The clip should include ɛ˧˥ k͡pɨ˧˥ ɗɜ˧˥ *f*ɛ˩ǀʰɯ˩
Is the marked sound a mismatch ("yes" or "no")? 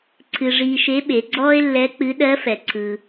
no